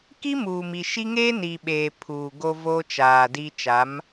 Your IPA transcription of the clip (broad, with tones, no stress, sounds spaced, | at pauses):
k i˦ m uː˨ m i˨ ʃ i˦ ŋ eː˦ n iː˨ ɓ eː˨ pʰ uː˨ ɡ o˦ v oː˦ t͡ʃ aː˨ d i˦ t͡ʃ a˨˦ m